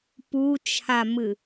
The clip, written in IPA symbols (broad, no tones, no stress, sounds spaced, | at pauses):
p u t͡ʃʰ a m ɨ